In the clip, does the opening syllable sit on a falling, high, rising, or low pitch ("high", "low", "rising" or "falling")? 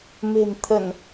low